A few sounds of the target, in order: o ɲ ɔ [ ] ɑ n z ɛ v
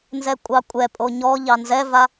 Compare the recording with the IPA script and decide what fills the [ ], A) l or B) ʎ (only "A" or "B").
B